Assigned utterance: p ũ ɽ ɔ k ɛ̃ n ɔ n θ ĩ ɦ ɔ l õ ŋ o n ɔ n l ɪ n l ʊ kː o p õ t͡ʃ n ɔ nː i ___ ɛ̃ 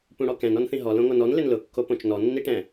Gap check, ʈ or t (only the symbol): ʈ